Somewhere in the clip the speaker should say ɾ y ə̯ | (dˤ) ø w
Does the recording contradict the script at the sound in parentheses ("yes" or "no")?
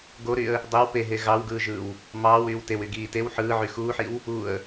no